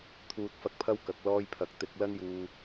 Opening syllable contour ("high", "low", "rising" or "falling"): low